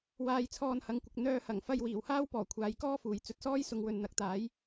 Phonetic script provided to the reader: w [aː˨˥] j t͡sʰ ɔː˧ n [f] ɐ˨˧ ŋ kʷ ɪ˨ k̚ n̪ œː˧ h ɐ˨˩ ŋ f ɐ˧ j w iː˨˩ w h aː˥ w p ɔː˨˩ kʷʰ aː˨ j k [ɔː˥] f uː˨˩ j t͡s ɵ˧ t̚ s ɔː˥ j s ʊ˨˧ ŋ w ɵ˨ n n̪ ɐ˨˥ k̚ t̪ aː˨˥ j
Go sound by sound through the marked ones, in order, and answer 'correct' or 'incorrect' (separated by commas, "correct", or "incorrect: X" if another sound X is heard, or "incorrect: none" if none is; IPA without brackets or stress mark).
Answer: incorrect: aː˧, incorrect: h, correct